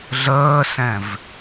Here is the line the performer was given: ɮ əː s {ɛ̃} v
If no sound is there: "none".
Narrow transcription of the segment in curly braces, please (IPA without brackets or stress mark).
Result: ɛ̃